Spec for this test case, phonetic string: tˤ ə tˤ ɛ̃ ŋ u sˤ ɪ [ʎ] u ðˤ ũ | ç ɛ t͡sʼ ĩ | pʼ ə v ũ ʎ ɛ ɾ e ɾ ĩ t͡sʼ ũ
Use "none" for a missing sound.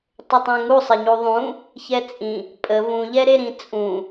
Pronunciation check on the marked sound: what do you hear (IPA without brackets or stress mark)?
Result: ɲ